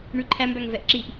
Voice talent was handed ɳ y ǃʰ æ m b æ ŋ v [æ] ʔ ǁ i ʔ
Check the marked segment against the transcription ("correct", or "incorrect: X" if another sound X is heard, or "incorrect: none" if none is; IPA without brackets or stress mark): incorrect: ɛ